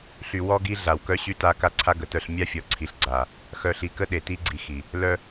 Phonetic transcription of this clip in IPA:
ɬ y˨ w ɔ˦ ɡ i˦ ɮ a˨ w k œ˦ ɕ y˦ t a˦ k a˦ ǀʰ a˦ ɡ ə˨ t œ˦˨ ɬ mʲ a˦ fʲ ɔ˨ ǀʰ i˨ ɬ ɡ͡ǀ a˨ | x œ˨ ɬ i˨ k ə˦ ɗ e˨ t i˦ ɡ͡ǀ i˨ x i˨ | l œ˦

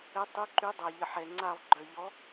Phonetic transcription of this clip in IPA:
ɛ˧˥ tˤ u˧˥ ǃ y˧˥ dˤ a˨ ʎ ə˨ ħ ɛ˨ ŋ͡ǀ a˥˧ lˠ ɡ͡ǃ œ˨ ʎ ɔ˧˥

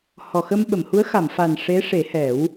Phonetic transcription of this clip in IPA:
h ɔ˨˩ x ə˧ m ɓ ə˨˩˨ m h u˧˥ ə̯ x a˨˩˨ m f a˨˩ n ʂ e˧˥ ʂ e˨˩˦ h ɛ˨˩˦ w

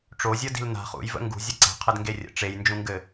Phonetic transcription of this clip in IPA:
ʈ͡ʂ o zʲ ʌ d i̤ l n a̤ χ ṵ j v ə̰ ŋ ɡ ṳ zʲ ə ǀ a̤ qʰ ɘ d ŋ ɡ e rʲ ə̰ ʈ͡ʂ e j n d͡ʒ ũ ŋ ɡ ɘ

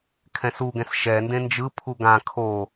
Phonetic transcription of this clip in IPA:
kʰ ɛ̃ s u ɡ ɛ̃ s ʃ ɛ n d ẽ n d͡ʒ ɯ pʰ u ɡ ã kʰ o

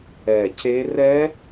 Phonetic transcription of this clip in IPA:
ɛ˨˩ cʰ e˦˥ r ɛ˦˥

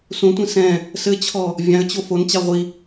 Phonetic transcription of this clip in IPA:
s ũ tʷ ĩ s ɛ̃ | s ɘ t͡ɕʰ ɔ | vʲ ã ə̯ t͡ɕ o f o n t͡ɕ a ʁʷ i

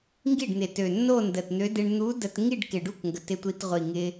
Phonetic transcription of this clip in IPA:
ŋ ɡ i˥˩ ɖ n̪ ɪ˨˩ t ø˨˩ nː o˥˧ n d ə˨˩ t n̪ ø˧˥ d ɪ˧ ɳ n̪ u˧˥ d ə˧ t ŋ i˥˧ ɖ k ɪ˨˩ ɖ u˥˩ k ŋ ɡ ə˨˩ t ɪ˧ tʷ i˧ t ʁʷ i˨˩ ŋ ɪ˧

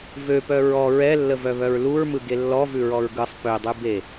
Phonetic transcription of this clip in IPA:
v ø p œ ɹ ɔ ɹ ɛ lː ə v œ β œ ɹ l u ɹ m ɯ ɡ e lː ɔ v ʉ ɹ ɔ ɹ ɡ ɯ sˤ p ø dˤ ʉ b e

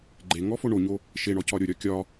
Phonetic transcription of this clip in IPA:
ɡ͡ǃ e ŋ ɔ f o ɳ o ɲ o | ʃ e ɳ ɔ c ɒ ɾʲ o ɾʲ ɒ kʲ ɒ

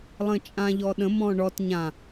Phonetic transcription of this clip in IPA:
lˠ ə̃ t͡ʃʼ ã ʎ ɔ ɗ ə̃ m ɔ̃ ɳ ɔ t ɲ ã

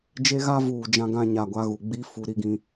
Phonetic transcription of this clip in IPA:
d͡ʒ e˦ ɣ a˦ v uː˨ d͡ʒ ã˦ ɡ ã˦ ɲ a˨ ɡʷ a˦ ɣ u˨ ɡ͡b i˦ f u˨ ɾ i˦ ɡ ĩ˦

